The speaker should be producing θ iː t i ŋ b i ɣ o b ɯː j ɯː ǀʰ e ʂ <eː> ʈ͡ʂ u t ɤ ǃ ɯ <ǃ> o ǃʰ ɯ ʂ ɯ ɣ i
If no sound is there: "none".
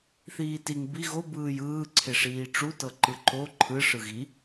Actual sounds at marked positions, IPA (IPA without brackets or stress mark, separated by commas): iː, ǃ